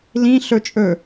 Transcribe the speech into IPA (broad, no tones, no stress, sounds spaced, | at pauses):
l ĩ ɬ ɵ t͡ʃʼ ɵ